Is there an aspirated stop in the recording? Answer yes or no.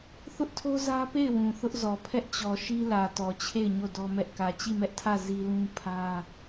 yes